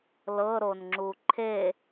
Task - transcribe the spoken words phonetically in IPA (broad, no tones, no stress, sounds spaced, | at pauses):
l ɤ ɾ o n ŋ͡ǁ u ǃʰ e